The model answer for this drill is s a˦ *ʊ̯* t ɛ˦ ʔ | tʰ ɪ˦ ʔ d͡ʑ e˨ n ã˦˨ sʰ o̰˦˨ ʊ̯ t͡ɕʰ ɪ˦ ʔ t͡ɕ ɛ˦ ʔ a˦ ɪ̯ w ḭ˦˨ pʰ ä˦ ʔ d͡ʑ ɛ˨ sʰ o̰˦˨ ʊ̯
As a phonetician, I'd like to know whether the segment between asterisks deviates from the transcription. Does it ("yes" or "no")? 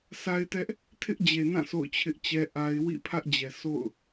yes